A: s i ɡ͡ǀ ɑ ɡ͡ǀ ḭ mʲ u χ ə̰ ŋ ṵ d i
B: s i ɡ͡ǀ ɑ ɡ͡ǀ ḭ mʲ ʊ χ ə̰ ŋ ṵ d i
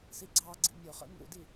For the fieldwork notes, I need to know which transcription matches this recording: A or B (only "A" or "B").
B